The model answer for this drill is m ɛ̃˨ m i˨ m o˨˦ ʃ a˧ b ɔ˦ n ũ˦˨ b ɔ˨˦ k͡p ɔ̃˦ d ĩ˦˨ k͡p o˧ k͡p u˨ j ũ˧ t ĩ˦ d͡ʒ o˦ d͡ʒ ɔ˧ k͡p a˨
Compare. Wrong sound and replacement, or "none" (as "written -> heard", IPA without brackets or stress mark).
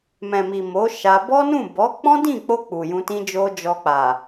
none